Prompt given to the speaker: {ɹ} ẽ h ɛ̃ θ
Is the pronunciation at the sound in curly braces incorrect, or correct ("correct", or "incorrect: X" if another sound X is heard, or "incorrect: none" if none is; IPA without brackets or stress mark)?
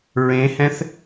correct